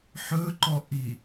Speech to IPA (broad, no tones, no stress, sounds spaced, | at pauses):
ħ ɵ ǃ ɔ ʔ i